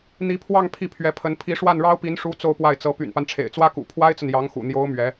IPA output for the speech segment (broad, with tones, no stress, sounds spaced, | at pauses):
n̪ i˧˥ pʰ w ɑ˥˧ ŋ pʰ i˥˩ pʰ ɥ ɛ˧˥ pʰ ə˧˥ n pʰ i˧˥ ʂ w a˥˩ n ɻ ɑ˥ ʊ̯ p i˧˥ n ʂ u˧˥ t͡s o˥˧ ʊ̯ p w a˥˩ ɪ̯ t͡s ɤ˧˥ p y̰˨˩ n p a˦ n ʈ͡ʂʰ ḛ˨˩ ɪ̯ t͡s w ä˥ k ṵ˨˩ pʰ w a˥ ɪ̯ t͡s ə˨ n j ɑ˧˥ ŋ x ṵ˨˩ n̪ j o˧˥ ʊ̯ m ɥ ɛ˧˥